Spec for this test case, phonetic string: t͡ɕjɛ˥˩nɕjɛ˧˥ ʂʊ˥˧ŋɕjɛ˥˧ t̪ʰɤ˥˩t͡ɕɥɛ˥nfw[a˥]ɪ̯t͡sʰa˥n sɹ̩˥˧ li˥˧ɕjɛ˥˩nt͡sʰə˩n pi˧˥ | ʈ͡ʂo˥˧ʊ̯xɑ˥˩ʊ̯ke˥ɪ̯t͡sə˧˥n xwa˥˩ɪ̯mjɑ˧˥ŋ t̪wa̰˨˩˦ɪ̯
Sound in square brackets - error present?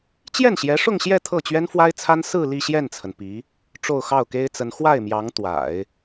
no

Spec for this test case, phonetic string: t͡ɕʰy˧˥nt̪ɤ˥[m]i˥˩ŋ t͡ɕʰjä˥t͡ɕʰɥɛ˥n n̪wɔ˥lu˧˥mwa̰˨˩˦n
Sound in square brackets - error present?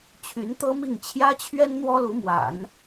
no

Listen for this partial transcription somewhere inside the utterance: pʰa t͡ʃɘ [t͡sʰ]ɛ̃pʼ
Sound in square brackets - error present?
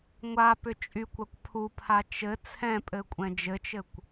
no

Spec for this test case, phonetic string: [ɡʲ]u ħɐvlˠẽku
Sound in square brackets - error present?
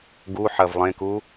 yes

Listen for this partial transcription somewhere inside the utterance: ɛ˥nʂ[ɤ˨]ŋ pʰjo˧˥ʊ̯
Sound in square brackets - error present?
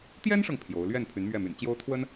no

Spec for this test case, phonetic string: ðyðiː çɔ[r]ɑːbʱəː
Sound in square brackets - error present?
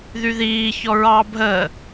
yes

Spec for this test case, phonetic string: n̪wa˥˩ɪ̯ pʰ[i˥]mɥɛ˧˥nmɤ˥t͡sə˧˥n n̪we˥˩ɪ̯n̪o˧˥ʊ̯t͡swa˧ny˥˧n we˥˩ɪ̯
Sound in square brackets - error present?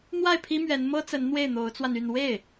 no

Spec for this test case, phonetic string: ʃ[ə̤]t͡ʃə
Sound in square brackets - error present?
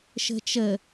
no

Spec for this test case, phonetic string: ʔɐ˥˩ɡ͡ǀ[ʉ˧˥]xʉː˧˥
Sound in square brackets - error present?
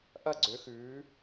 yes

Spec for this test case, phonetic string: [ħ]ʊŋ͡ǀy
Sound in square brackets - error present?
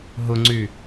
yes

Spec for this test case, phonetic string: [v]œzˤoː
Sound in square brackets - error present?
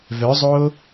no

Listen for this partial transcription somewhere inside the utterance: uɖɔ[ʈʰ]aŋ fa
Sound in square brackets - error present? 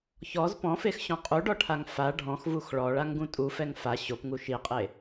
no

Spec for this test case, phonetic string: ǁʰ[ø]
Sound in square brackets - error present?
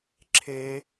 yes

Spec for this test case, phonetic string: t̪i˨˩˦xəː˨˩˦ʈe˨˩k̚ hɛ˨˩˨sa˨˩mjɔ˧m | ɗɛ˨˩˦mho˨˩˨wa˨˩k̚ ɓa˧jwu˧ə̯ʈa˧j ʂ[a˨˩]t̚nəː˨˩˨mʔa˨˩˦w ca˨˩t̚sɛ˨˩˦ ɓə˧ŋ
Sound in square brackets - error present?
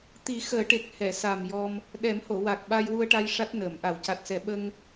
yes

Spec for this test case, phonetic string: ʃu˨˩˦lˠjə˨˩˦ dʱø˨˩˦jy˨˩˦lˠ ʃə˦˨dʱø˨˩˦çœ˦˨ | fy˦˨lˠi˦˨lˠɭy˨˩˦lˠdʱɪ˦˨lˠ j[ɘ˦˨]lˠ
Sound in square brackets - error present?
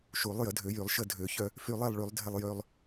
yes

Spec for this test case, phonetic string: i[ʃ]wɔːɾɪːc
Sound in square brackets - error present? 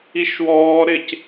no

